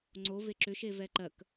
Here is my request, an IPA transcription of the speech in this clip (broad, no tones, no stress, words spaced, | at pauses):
ŋ͡ǀo veǁʏʃe vɛǃɜk